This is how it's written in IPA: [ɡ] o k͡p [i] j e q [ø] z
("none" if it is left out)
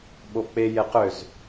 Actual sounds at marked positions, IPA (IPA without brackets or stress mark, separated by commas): ɓ, e, ø